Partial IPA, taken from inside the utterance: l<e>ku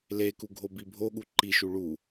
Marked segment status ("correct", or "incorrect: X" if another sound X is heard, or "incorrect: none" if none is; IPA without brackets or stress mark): correct